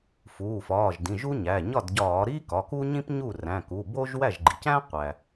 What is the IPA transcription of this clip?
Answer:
fuː˩˧˩fɒː˩˧˩ʒdĩ˩˧˩ʒ u˥ɲæ˩˧˩ ɲɒ˥˩dɟɒː˧˩˧ɾi˥ kɒ˩˧˩ku˥ɲĩ˥pɲu˥˩ ræ̃˩˧˩ku˩˧˩bo˥ʒ wæ˥˩ʒɡ͡ǃi˩cæ̃˥ qʷæ˩

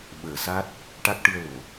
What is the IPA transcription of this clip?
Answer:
ɓəː˨˩ sa˦˥t̚ | ʈa˦˥k̚ʈɨ˧ə̯lo˨˩˨

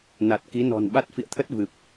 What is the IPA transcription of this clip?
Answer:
na˨˩t̚ki˨˦nɔ̤˨˩n ɓa˦˥t̚ fḭ˧˨ə̯t̪ʰə˦˥t̚ vɨ˨˩p̚

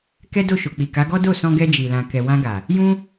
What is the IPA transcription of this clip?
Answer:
kɛ˦do˦˨ʃo˨ k͡pi˨ka˨˦ɡɔ˦ do˦˨sɔ̃˧ɡɛ˧ d͡ʒi˨lã˨kɛ˨ wã˧ɡa˨ | jũ˦

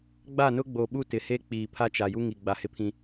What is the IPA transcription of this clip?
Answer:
ɡ͡ba˦˨nʊ˦ɡ͡bo˨ ɓu˦tɪ˨he˦ k͡piː˨pʰa˦ t͡ʃa˨ju˦ŋi˨ ɡ͡ba˨hɪ˦pʰĩ˦

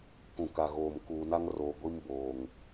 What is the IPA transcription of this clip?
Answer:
kũ˨ka˨ɣoː˨m kuː˨na˦ŋroː˨ ɡʷi˦mboː˨ŋ

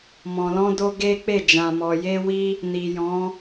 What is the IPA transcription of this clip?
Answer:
mɔ̃˨lɔ̃˧do˧ ɡe˦k͡pe˦˨ d͡ʒã˨mɔ˨je˧wi˧ | ni˨jɔ̃˨˦

